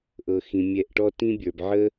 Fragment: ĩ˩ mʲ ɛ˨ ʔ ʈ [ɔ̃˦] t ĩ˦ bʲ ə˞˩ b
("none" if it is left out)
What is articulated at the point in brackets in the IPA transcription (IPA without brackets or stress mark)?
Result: ɔ˦